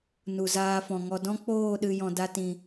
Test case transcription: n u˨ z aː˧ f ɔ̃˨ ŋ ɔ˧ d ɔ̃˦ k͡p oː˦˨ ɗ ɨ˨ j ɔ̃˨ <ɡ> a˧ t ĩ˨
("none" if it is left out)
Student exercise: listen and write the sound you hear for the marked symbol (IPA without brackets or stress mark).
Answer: d